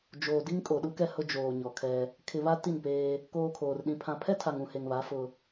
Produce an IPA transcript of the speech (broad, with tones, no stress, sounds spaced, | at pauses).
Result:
d͡ʒ oː˨ d i˦ ŋ kʼ o˨ ɗ u˦ k ɛ˦ h ʊ˦ d͡ʒ oː˨ ɲ ɔ˨ kʰ ɛ˦ | kʰ ɪ˨ β a˦ t i˦˨ n p eː˦ | k oː˨ kʰ oː˨ r ɗ ĩ˨ pʰ ã˨ pʰ ɛ˦ tʰ a˨ ŋ ũ˨ h e˨ ŋ β a˨˦ f ʊ˦